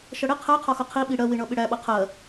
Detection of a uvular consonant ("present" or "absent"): present